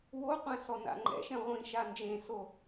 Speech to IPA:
w o qʷ ɛ̃ s ɔ n a̰ ŋ͡ǃ ɛ̰ ʃ ɛ̃ ʁʷ ĩ ʃ a n d͡ʒ ẽ s o

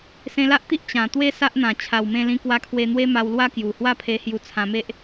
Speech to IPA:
s ẽ˧ l a˦ ʔ t̪ i˦ ʔ t͡ɕ ã˨˩ t̪ w e˦ s a˦ ʔ n̪ ã˨˩ t͡ɕʰ a˨˩ w m ẽ˧ l ĩ˧ k w a˧ kʰ w e˧ n̪ w e˦ m a˧ w l w a˦ k j u˨˩ h w a˥˧ pʰ e˧ h j u˧ t͡sʰ ã˧ m e˦ ʔ

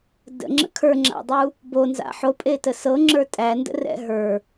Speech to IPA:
d ə̰ ŋ͡ǁ ə̰ kʰ ə˞ ŋ͡ǁ a̰ dˤ u | b o n z a̰ ħ o pʼ e t ə s ɤ ŋ͡ǁ ə˞ tʼ æ n d ə̰ r ɛ̰ ɦ ə˞

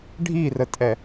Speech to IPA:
ɖʱ i r ə tʼ ɛ

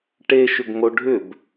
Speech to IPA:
ʈ e ʃ ʏ ɡ ŋ o ɖʱ ʏ b

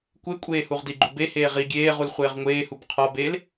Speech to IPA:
kʷ e kʷʼ eː h u ʁ d i ɡ͡ǃ u b e h eː ʁ i ɡʲ eː ʁ u l χʷ eː ʁ ŋʷ eː h u b qʰ ɒ b eː l

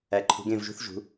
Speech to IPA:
æ˩˧ ǃʰ ṳ˩˧ ɡ ẽ˧˩ v ʒ ṳ˧ θ ʒ ṳ˩˧

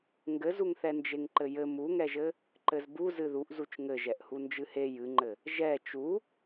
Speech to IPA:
ŋ ɡ ɘ z u ŋ θ ɛ n d͡ʒ e ŋ ǃ ɘ j ɘ m u ŋ ɛ ʒ ɘ | ǃ ɘ z b u z ɨ ð u ʔ z u t͡ʃ ŋ ɘ ʒ ɛ ʔ h u n d͡ʒ ɨ h e j ɨ ŋ͡ǃ ɘ | ʒ ɛ t͡ʃ u

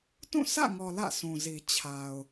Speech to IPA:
t ũ˦˨ sʰ ä̰˦˨ ŋ ɔ˨ l ä̰˦˨ sʰ ũ˨ z i˨ t͡ɕʰ a˨ ʊ̯

